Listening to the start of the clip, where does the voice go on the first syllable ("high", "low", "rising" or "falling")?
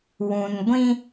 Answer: low